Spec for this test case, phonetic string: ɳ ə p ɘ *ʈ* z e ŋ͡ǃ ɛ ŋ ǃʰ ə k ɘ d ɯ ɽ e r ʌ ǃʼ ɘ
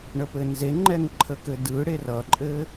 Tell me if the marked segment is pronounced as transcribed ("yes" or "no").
no